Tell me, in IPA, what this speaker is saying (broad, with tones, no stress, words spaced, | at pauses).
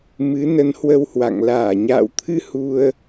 mɨ˨˦nə˨˦nhwə˧whwa̰˧˨ŋ laː˧˩ɲa̰ː˧˨wt̪ʰɨ˧ hu˧ə̯